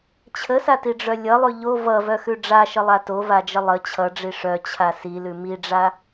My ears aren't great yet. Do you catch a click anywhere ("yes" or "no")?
no